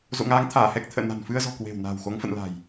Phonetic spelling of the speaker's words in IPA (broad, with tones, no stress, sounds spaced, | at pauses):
z o̰˧˨ ŋ aː˨˦ ŋ t̪ʰ aː˧˩ h ɛ˦˥ k̚ t̪ʰ ə̰ː˧˨ n a̤˨˩ n f ɨ˧ ə̯ z ɔ̤˨˩ k w e̤˨˩ w n a̤ː˨˩ w x o˨˦ ŋ f ə̰˧˨ n l a̤˨˩ j